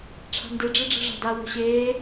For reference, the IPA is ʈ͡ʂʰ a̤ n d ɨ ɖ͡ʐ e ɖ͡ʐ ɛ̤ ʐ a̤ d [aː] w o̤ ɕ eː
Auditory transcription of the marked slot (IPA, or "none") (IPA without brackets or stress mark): a